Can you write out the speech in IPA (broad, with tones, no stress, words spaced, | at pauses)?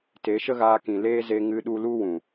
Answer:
te˨˦ʃə˦ɣaː˧kĩ˨ leː˦ze˧ ŋɨ˧ɗu˧lu˦wũ˨